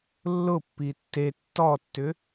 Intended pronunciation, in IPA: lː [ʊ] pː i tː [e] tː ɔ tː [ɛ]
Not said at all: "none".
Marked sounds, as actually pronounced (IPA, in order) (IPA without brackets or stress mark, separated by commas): ʊ, e, ʏ